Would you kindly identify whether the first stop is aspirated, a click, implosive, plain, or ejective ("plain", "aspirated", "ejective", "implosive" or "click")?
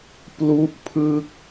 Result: plain